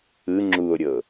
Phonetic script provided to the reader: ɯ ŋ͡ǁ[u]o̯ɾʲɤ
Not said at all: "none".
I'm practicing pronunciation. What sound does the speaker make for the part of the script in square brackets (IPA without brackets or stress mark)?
u